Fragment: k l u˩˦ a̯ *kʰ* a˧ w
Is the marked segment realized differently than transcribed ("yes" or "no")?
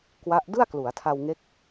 yes